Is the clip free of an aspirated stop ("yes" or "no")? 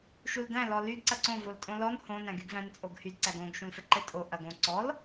yes